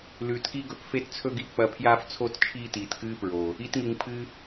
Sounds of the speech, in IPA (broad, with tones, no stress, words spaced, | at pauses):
lʉː˨tki˦ ɡɵ˧p fe˦tt͡sʰɵ˦ɡi˧ k͡pɐ˧pʰjaː˦ft͡sʰo˦t t͡ʃʰiː˦tiː˨tkɨː˦pɹo˨ | i˧tŋi˨ŋ pʰɨ˧